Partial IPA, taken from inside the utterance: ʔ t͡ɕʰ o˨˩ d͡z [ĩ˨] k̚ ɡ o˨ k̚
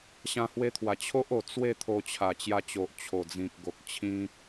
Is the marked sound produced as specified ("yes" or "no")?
yes